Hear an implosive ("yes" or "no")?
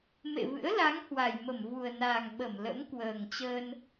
yes